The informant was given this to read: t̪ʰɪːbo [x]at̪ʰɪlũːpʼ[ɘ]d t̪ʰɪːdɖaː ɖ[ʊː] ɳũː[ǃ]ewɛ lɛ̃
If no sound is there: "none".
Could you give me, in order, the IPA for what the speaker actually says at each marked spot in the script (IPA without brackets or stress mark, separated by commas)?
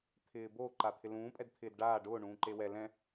ǃ, ɛ, ʊː, ǃ